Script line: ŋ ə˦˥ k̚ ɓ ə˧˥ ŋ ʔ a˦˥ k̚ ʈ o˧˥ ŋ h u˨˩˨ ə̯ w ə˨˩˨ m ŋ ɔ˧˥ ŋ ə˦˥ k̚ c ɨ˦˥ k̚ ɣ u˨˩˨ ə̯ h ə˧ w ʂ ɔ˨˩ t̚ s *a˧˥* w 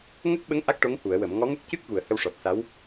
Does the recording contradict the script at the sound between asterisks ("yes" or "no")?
no